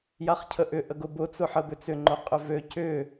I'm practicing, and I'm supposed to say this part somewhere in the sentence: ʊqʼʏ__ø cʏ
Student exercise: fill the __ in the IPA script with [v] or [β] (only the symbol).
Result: v